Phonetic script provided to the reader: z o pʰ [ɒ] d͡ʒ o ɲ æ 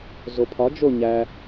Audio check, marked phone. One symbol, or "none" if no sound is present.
ɒ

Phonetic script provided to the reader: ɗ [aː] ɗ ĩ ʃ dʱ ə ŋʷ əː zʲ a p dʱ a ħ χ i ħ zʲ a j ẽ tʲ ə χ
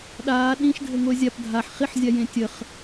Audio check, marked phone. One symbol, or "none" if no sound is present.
aː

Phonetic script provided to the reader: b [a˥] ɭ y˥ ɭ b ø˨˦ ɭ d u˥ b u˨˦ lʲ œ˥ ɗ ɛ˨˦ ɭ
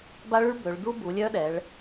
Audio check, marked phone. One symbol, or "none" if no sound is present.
a˥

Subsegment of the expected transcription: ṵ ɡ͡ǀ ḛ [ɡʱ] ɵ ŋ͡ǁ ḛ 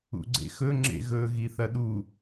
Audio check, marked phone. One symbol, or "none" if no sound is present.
x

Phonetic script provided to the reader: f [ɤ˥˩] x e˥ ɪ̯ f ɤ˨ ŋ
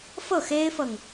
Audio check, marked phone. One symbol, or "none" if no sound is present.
ɤ˥˩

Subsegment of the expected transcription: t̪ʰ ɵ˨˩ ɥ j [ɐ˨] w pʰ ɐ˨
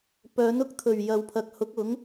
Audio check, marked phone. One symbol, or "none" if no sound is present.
ɐ˨˧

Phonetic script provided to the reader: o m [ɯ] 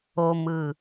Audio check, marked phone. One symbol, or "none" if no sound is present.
ɯ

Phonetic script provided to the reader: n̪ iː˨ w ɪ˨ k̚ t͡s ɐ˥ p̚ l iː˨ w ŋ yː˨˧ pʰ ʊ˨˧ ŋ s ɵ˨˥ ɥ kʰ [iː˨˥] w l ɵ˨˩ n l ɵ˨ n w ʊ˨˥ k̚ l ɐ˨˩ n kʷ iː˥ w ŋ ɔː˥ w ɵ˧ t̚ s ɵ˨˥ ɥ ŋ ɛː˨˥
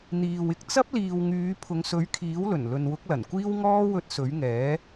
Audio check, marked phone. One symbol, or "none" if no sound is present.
iː˨˥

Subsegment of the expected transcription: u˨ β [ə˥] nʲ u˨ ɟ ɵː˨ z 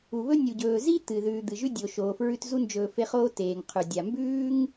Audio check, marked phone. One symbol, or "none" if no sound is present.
ɵ˥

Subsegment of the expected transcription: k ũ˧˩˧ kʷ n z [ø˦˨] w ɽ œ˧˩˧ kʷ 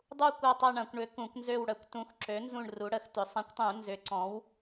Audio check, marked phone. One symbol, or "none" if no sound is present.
ø˦˨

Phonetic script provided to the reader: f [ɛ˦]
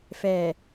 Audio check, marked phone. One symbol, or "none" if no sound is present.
ɛ˨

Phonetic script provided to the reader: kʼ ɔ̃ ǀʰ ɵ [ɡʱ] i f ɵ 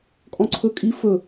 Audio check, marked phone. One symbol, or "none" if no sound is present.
kʼ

